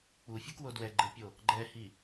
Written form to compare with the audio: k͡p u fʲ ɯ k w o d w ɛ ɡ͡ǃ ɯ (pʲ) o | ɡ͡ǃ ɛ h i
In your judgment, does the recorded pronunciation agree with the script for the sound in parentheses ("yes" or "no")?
yes